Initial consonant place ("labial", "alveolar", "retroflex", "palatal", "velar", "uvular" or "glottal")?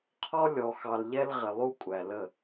uvular